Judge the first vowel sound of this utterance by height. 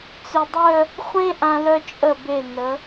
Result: mid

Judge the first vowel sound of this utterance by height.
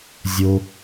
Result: mid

